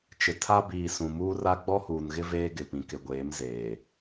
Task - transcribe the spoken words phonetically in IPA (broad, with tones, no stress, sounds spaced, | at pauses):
t͡ʃ ɪ˨ tʰ a˦ b iː˨ s ũ˨ m uː˦ r a˦ ɡ͡b ɔ˦ h uː˨ n ɣ ɪ˦ v eː˦ ɡ ɪ˨ p ĩ˨ k ɪ˨ ɡʷ eː˨˦ m z eː˨